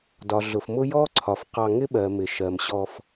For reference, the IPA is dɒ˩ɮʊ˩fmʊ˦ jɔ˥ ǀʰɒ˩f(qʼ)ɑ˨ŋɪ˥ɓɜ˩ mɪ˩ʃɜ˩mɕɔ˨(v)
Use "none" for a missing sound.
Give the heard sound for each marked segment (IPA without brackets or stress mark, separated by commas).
q, f